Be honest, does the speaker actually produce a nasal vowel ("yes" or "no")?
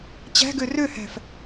no